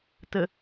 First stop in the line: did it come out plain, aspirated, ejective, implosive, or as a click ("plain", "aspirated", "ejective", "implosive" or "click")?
plain